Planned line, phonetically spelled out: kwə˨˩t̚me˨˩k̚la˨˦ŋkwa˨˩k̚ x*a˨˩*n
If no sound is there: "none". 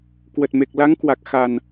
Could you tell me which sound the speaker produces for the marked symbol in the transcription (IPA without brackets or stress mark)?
a˨˩